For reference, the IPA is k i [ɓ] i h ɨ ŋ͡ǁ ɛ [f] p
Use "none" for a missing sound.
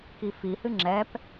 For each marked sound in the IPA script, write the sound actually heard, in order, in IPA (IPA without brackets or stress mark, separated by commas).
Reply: f, none